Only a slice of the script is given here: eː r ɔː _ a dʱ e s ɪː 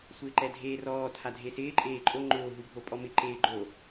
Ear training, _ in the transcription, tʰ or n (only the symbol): tʰ